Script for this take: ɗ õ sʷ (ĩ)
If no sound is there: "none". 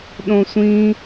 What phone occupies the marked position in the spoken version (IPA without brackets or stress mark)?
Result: ĩ